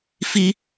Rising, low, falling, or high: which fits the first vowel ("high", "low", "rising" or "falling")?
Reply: high